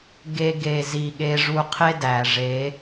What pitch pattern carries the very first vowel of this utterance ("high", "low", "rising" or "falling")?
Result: high